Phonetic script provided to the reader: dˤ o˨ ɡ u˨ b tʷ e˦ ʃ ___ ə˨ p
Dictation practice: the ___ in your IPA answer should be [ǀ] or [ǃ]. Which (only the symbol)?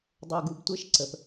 ǀ